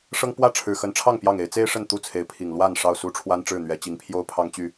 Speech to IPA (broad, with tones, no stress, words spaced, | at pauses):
ʂɤ˦ŋ pwä˥˨ʈ͡ʂʰɻ̩˨˩xə˨˦nʈ͡ʂʰɑ˥˨ŋ pjɑ˥˨ŋe˨˦ɪ̯ t͡se˦ɪ̯ʂə˥˨n t̪u˥˨t͡sʰe˨˦ɪ̯pʰi˨˩ŋ lwa˥˨n ʂɑ˥˨ʊ̯su˦ʈ͡ʂʰwa˦n ʈ͡ʂɻ̩˥˨n̪ɥɛ˨˦t͡ɕi˨˦ŋpʰjo˦ʊ̯ pʰɑ˦ŋ t͡ɕy˥˨